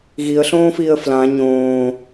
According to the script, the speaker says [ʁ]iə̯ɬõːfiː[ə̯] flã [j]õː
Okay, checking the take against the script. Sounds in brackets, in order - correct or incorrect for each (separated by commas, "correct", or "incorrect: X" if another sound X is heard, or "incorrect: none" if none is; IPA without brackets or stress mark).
incorrect: ɣ, correct, incorrect: ɲ